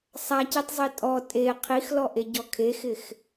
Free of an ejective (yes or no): no